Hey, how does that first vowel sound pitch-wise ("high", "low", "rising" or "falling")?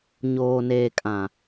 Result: low